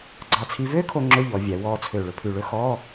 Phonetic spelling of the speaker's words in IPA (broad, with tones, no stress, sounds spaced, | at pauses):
ɡ͡ǀ ɑ˧˩ t͡sʰ i˧ v øː˥ kʰ o˧ ŋ͡ǁ ɵ˧˥˧ ʎ ɔ˩˧ vʲ æ˩˧ w ɔː˧ t͡sʰ ø˧˩ ɭ ɵ˧ pʰ ʉ˧˩ ɭ ɵ˥ x ɔː˧˥˧